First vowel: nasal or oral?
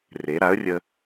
oral